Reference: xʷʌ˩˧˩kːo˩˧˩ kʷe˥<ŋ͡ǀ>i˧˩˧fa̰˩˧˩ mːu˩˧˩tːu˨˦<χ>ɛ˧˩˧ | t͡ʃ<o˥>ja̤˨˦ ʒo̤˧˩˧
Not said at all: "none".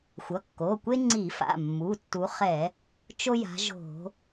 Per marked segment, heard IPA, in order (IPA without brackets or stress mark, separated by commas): ŋ͡ǀ, χ, o˥